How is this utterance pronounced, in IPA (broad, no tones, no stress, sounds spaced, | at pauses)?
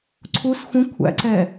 ǀʰ u s xʷ ə̃ kʷʰ æ̰ ǀ ɛ